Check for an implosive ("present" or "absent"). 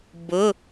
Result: absent